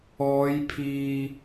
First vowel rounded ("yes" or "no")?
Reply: yes